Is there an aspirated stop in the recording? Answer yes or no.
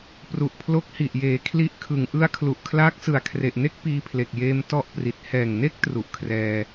yes